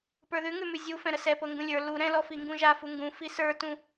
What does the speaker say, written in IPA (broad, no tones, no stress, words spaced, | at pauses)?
pə˞ðʉŋʉmʉ zʲu fɛ̃ɾəsɛ pɤŋɡũlʲə˞ lu ɾɛ̃lɔ fiŋɡũʒafu ŋɡũ fisə˞tũ